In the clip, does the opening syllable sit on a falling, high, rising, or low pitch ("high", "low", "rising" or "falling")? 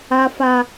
high